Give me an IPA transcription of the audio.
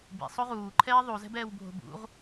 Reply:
b ḭ sˤ o ʁ uː ǃʰ ɛː ðˤ u z ɛ̤ b ɛː w bʱ o̤ b ṵ ʁ

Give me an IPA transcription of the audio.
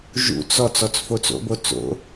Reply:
ʒ ṵ t͡s ɔ t͡s ɔ t͡s f o t͡s o̰ b o t͡s o̰

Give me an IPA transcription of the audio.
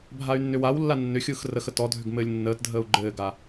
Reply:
bʱ a y̯ nː ʏ w a w lː a nː ʏ xʲ ɯː x r ə x ə t ɔ dʱ ʏ ɡ m ɘː lʲ nː əː t dʱ əː u̯ ɡ͡ǃ ɘː ɡ a

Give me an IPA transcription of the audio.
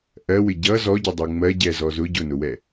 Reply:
ʔ ɜ w ɪ ɟ ʌ z ɔ ɟ ʊ dˤ u ŋ͡m ɜ ɟ ɛ z ɔ z ʊ ɟ ʊ n ʊ w ɛ

